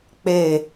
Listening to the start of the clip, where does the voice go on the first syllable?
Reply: low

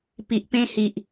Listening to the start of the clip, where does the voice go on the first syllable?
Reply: low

